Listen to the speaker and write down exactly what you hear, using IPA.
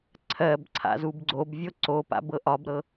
ǀʰ ɜ b ǀʰ a̰ z u b ɡ͡ǀ o b vʲ o ǀ o p a̰ b ɤ ʔ ɒ b ɾ ɤ

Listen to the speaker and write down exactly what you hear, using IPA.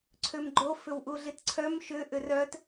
ǀʰ ø m ɡ͡ǃ o f ʏ w ʔ u ɮ i t ǀʰ œ m ʃ ʏ ʔ ʏ r œ t

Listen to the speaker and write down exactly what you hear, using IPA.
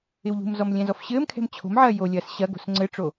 ɪ w ʎ ṳ m z ɔ m lʲ ɛ̃ z ɔ f ɕ ɘː m kʰ ɛ̤ m t͡ɕʰ o̤ m ʕ ɐː j o lʲ ɐː s ɕ ɐ ɡ o̤ s ŋ͡ǀ ɘ ʈ͡ʂ o

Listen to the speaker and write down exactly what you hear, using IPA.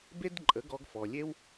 b e˦ d ǃʼ ə˨˦ ɡ ɔ˧ ɡ f ɔ˨ lʲ e˦ w

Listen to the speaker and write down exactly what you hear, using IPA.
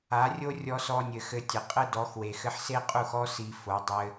a˨˦ rʲ o˦ rʲ ɔ˧ s ɔ˧ nʲ ɘ˨ x ɘ˧ tʲ ɘ˨ qʼ ɘ˦ d ɔ˨˦ x w e˨ x ɘ˧ ħ s e˦ qʼ u˦˨ x ɔ˦ s i˧ f o˨˦ dˤ ɘ˧

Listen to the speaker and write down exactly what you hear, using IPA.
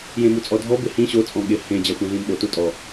j ẽ m u t͡sʼ ɔ dʱ ɔ b ɪ h ĩ ɕ o t͡sʼ ɔ̃ ɠ ɪ h ẽ d͡ʑ a xʷ ẽ ɮ ĩ m ɓ o t u tʼ ɔ

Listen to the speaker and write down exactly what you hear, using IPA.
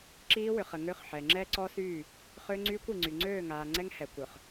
ǁ iː˦ w ʏ˨ χ ə˨ ŋ ø˦ χ ħ ɛ˨ ŋ͡ǁ ɛ˦ ǀ ɔ˦ s yː˦˨ | χ ø˦ ŋ͡ǀ yː˦ kʷ i˨ ŋ͡ǀ y˨ ŋ͡ǀ øː˦˨ ŋ aː˨ ŋ͡ǀ ɛ˦ ŋ h ɛ˨ kʷ œ˨ χ

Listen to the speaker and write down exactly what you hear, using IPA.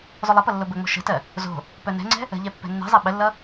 zˤ o lˠ ə p ʌ lː o b ə ŋ͡m o̤ ʃ ə̤ t ɜ | z o̤ | p œ n ɛ̤ ŋ͡ǀ ɛ̤ | ə̤ ʎ ɛ pː ɛ̤ nː ɛ̤ zˤ ɛ ɓ ə lː ʌ

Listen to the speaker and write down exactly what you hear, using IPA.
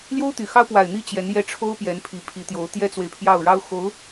l j o˥ ʊ̯ t̪ y˨˩ x ɑ˥ ʊ̯ p w a˨˩ ɪ̯ n̪ i˥˩ t͡ɕ j ɛ˧˥ n j ɛ˥˩ ʈ͡ʂʰ o˥ ʊ̯ p j ɛ˧˥ n pʰ i˧˥ pʰ i˧˥ t̪ j o˧˥ ʊ̯ t̪ j ɛ˥ t͡s w e˨ ɪ̯ pʰ j ɑ˥˩ ʊ̯ ɻ ɑ˥ ʊ̯ x o˧˥ ʊ̯

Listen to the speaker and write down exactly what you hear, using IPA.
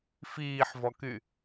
f iː ħ v ɔ k y

